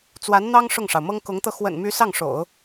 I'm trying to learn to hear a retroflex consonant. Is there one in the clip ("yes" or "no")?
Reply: yes